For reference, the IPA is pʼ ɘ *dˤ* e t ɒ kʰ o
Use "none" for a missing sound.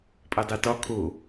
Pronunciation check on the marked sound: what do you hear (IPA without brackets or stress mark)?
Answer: dˤ